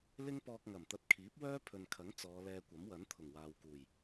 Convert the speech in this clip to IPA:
lɪ˥ŋpɔː˧k̚ŋɐ˨˩m t̪ɐ˧t̚kʰiː˨˥p̚wœː˥ pʰɵ˨nkʰɐ˨˥ŋ t͡sɔː˨˧lɛː˧kʷɐ˨˥mwɐ˨˥n t̪ʰʊ˨˩ŋwaː˨wkuː˨˩j

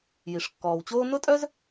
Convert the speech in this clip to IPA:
ji˩ʂkːɔː˩wt͡ɕoː˥ nʊ˥tʼœ˥z

